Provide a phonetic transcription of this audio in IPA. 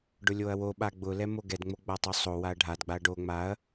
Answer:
ɖ ʊ lʲ o ɐ̯ w o ɓ a ɡ͡b ʊ l ɛ m o ɡ ɛ d ŋ͡m o ɡ͡b a tˤ o sˤ o w a ɐ̯ ɖʱ a d ɡ͡b a ɐ̯ ɖ o ŋ͡m a ɐ̯

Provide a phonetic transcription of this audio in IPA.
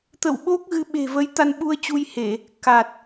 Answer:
t̪ ə̰˧˨ w ɓ o˦˥ k̚ ɣ ɨ˨˦ ɓ e̤˨˩ v ə˨˦ j t̪ a˧ n ɓ u˧ ə̯ t͡ɕ u˧ j h e˧˩˨ | k a˨˩ t̚

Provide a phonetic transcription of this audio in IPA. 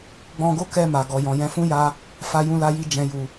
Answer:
ɡ͡b ɔ̃˧ ɡ o˦ k ɛ˧ m a˨ ɡ ɔ˨ j ɔ̃˨ j ɛ̃˨˦ f ũ˦ j a˧ | f a˧ j ũ˧ l a˧ j i˧ d͡ʒ ɛ̃˨ j u˨

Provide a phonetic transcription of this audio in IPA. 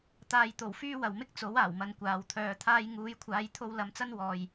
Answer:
t̪ aː˨ j t̪ o˨˩ w f yː˥ w ɐ˨ w m ɪ˥ k̚ t͡s o˨˥ w aː˨˩ w m ɐ˨ n kʷ aː˨ w t̪ʰ œː˧ t̪ʰ aː˥ j ŋ uː˨˧ j kʷʰ aː˨˧ j t̪ʰ o˧ w l ɐ˧ m t͡s ɐ˥ n w ɔː˧ j

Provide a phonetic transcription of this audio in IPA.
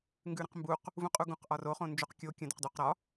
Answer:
ŋ ɡ ʉ ɾ ə̃ q m b u q | v ũ qʼ u ɡ ũ q ʔ ɒ r o χ õ n d͡ʒ o q kʲ o kʲ ə̃ d o q d u q ɾ ɒ

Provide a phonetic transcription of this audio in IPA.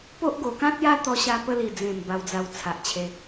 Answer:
p o˦ ʔ ɡ o˨˩ k ã˦ t̚ j a˦ t̪ ɔ˧ ɕ a˧ p ə˦ l i˨˩ d͡z ẽ˨˩ m b a˧ w d͡z a˧ w t͡sʰ a˨ ʔ t͡ɕʰ e˧

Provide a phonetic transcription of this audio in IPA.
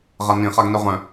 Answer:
ʁ a n ĩ χ a ɡ n œ ʁ œ̃

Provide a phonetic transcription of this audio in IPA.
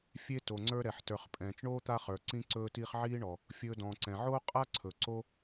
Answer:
fʲ e˦ t o˩ ŋ͡ǀ ə˞˦ ɾ ɛ˩ ħ t ə˞˨ χ pʼ ɛ̃ː˩ t͡ʃ ɳ oː˥ t̪ a˦ χ ə˞˩ ǀ ĩ˦ ǀ ɵː˦ t iː˦ χ ʕ iː˥ ɳ ɔ˨ | fʲ ɵː˨ d ɔ̃ː˩ ǀ ɛ̃˩ ʕ oː˦ qʼ a˥ ǀʰ ɵ˩ ǀ o˦

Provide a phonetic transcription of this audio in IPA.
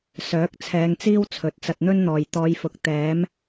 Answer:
s œː˨˥ k̚ t͡sʰ ɛː˨˧ ŋ t͡s iː˥ w t͡sʰ ɵ˨ t̚ t͡s ɐ˧ t̚ n̪ ɵ˥ n n̪ ɔː˨ j t̪ ɔː˨˧ j f ʊ˨ k̚ t̪ ɛː˨˥ m

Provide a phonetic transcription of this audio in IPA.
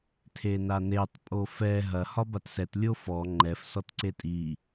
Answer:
tʰ e n a n e tˤ pʼ o f ɛ ɦ ɐ h ɒ b a t s ɛ t lʲ o f ɔ ŋ͡ǃ ɛ f s ɔ t ǀ e tʼ i

